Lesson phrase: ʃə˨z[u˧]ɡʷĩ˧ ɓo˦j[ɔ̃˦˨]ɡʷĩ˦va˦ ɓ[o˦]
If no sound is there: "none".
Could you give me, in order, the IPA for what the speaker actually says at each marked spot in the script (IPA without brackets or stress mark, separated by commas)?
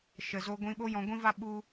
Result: o˧, ɔ̃˧, u˦